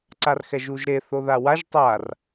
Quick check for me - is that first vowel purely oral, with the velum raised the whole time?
yes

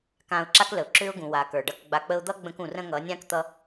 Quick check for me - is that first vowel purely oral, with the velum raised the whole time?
no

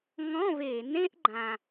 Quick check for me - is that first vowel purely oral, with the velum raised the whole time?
no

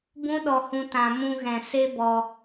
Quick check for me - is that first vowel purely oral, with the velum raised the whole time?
no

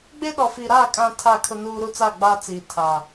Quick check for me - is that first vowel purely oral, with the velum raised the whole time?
yes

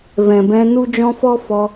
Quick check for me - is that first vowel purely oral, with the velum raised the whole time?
no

